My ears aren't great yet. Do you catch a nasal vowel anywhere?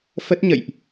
no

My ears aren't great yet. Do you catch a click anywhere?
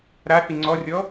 yes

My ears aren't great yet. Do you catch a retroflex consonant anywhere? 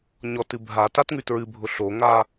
no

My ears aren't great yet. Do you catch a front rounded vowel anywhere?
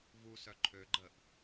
yes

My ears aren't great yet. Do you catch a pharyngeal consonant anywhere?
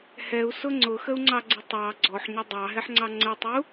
yes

